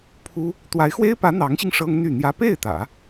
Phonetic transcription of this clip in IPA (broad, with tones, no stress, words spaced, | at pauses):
pʰu˥ | t̪wa˧˥ɪ̯xwe˥ɪ̯pä˧˥ n̪ɑ˧˥ŋɕi˧ŋ ʂɤ˥ŋn̪y˥˩n̪jä˥ pe˥˩ɪ̯t̪ä̰˨˩˦